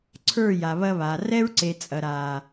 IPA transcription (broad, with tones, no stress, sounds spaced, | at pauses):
ǀʰ ə˞˦˨ j a˨ β ɐ˦ β a˨ r ɛ˦ ɹ ǀ e˨ t͡sʼ ɐ˨ ɾ aː˨